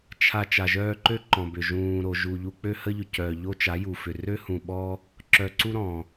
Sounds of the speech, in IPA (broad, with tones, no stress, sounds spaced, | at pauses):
t͡ʃʰ a˧ t͡ʃ a˨ ʒ œː˧ ǃ ø˦ ǃ ɔ̃˨ b ʏ˨ ʒ ũː˨ ɾ o˨ ʒ u˨ ʎ u˧ k͡p ø˧ h ə˧ ʎ ʏ˨ c œ˨ ʎ o˦ t͡ʃ a˨˦ j u˨ f ʏ˨ r ø˦ h ũ˨ ɓ ɔ˦ | ǁ œ˨ ǀ u˦ ɾ ɔ̃˨